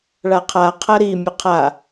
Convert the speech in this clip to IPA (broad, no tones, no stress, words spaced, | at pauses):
ɭaqʰaqʰɐ ɾi mʲɐqʰa